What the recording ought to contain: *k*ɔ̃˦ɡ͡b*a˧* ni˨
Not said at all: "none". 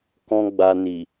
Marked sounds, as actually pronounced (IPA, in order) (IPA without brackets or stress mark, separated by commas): k, a˧